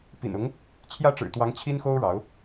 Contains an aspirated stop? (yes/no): yes